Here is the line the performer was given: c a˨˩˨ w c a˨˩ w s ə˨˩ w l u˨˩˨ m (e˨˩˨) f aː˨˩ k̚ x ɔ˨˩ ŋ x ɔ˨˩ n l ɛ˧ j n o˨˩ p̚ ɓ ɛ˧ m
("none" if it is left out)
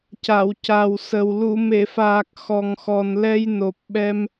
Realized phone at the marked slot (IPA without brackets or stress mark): e˨˩˨